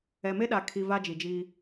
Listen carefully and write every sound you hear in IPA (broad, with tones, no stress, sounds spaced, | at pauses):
ɛ˨ m e˦ ɗ a˨ kʰ i˨ v a˦ d͡ʒ i˨ d͡ʒ iː˦